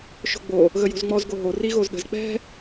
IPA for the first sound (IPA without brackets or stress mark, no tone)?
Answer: ʃ